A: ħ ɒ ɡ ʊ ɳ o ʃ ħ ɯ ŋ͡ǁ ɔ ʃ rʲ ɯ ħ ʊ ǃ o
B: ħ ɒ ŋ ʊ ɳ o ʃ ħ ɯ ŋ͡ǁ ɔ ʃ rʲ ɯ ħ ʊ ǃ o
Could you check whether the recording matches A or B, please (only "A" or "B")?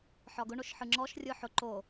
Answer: A